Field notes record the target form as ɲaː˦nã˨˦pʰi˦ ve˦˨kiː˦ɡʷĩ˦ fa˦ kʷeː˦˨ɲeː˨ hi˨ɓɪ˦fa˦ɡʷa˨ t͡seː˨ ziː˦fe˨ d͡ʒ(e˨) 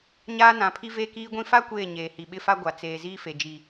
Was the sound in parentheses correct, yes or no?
no